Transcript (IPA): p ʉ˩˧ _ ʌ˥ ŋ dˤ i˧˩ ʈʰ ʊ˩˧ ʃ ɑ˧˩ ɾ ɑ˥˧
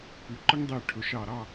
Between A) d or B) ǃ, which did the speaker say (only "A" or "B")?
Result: B